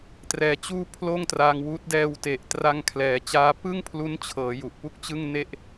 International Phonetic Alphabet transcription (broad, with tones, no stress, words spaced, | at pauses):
trɛː˧t͡ɕuː˥˩ pʰloː˥˩ŋtra˧ŋwuː˦˥t̚ dɛː˧wte˨˩ʔtra˧ŋ kʰlɛː˨˩t͡ɕaː˦˥ pɯ˥˩ŋpʰlu˦˥nt͡ɕʰɤː˩˦ ju˨˩ʔpu˥˩k̚t͡ɕɯ˥˩ŋne˥˩ʔ